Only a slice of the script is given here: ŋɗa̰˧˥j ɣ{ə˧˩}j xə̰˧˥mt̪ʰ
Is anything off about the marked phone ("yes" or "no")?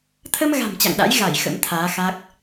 yes